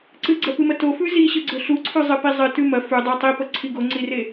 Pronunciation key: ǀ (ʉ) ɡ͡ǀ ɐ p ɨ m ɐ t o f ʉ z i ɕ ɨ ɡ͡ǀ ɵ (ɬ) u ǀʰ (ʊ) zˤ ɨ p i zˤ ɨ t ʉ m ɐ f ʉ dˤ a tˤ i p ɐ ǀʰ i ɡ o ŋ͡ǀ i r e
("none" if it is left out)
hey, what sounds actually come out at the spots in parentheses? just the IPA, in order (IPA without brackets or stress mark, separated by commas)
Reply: ɨ, ɬ, ʉ